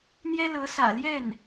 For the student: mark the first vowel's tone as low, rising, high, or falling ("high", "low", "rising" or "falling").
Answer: high